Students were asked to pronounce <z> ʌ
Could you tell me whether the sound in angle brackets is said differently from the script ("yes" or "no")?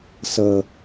yes